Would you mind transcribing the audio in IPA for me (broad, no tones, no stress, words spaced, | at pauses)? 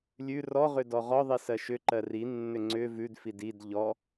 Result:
lʲʉ rɔʁʏ dɔʁɔðˤi sɜʃʏǃɜ rinːʏ ŋ͡ǀʏ vʉdfid id ʎɔ